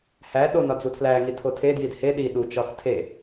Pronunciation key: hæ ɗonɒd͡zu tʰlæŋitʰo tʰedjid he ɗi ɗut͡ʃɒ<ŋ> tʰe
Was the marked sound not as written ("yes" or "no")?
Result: yes